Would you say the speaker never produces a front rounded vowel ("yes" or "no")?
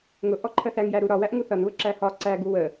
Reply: yes